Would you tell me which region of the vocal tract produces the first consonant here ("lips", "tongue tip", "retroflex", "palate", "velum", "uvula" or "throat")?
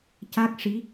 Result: palate